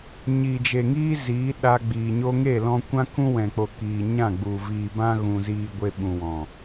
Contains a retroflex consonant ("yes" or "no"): no